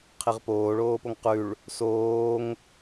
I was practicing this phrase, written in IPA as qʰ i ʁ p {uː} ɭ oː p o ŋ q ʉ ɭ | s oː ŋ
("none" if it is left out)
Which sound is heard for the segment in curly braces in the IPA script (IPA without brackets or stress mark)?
oː